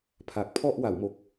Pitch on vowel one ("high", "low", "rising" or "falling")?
low